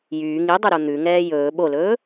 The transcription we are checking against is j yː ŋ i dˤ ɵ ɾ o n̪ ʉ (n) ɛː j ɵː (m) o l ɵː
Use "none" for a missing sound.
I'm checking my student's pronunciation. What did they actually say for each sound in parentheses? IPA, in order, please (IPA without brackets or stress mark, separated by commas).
ŋ, ɓ